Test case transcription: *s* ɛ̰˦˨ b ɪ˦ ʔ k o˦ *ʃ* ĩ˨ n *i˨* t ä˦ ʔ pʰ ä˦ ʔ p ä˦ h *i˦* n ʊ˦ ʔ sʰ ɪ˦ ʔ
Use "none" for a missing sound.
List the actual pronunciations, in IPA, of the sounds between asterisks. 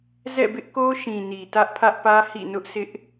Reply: z, ʃ, i˨, ḭ˦˨

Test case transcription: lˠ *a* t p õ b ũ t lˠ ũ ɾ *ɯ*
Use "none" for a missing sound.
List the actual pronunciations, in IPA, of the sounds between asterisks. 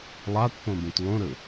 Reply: a, ɯ

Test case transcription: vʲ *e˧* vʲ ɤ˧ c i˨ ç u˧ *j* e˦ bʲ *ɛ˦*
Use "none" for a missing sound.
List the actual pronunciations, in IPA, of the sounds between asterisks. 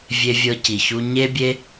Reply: e˧, ɲ, e˦

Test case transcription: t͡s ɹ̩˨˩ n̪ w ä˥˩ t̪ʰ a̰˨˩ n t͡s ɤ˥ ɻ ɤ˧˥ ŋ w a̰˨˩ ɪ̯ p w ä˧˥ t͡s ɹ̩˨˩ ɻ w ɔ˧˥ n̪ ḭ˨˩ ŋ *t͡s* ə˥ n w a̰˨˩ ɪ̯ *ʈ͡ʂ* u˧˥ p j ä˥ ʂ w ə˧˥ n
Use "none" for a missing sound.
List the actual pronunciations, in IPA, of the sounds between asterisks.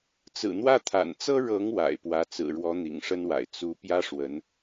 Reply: ʂ, t͡s

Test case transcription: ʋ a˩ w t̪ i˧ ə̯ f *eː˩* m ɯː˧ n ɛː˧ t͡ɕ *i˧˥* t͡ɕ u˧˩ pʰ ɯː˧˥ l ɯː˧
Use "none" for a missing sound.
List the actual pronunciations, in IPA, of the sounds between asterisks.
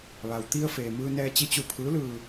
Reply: eː˩, i˧˥

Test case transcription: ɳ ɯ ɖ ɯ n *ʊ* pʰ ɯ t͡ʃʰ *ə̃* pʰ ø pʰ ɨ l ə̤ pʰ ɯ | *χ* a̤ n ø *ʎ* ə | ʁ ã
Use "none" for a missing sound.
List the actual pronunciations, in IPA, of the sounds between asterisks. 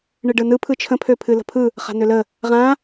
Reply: ɯ, ə̃, χ, l

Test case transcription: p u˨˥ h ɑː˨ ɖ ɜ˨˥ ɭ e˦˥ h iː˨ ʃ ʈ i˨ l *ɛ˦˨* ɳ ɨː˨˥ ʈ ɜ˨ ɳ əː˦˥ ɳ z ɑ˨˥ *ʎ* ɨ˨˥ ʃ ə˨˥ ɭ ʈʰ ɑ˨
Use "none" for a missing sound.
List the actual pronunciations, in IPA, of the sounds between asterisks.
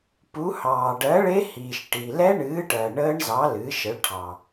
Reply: ɛ˦˥, l

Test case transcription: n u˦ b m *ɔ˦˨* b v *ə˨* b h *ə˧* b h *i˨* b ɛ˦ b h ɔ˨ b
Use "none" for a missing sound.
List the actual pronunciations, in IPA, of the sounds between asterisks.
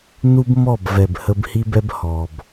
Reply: ɔ˦˨, ɛ˨, ə˧, i˦

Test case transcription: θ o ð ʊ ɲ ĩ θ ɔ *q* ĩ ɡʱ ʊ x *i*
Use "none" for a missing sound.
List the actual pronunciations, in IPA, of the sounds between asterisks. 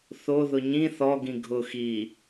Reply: ɡ, i

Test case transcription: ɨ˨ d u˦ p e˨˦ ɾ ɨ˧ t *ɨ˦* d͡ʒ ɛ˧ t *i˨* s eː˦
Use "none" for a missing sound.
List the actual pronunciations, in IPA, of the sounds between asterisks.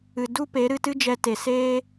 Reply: ɨ˦, e˨

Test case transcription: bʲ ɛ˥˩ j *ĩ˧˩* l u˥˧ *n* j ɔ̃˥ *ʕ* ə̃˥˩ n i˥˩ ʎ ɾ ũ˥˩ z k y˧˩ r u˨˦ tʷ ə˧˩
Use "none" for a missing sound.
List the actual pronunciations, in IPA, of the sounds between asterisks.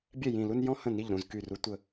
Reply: ĩ˧˩, n, h

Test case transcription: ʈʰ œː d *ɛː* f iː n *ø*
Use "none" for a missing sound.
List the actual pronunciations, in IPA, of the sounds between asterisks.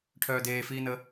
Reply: eː, ə

